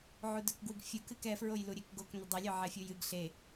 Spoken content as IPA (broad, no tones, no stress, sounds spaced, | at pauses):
ʕ u d œ k ɡ w ɨ ɡ fʲ u k ɨ k ɛ f ɹ o j l u ɾʲ e k ɡ o k n̪ ʏ dˤ ʏ lʲ œ ʕ ɛ fʲ u j ɨ ɡ ɬ e